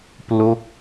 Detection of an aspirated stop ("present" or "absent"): absent